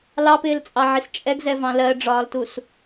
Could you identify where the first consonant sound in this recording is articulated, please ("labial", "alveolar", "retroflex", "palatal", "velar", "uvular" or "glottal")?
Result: alveolar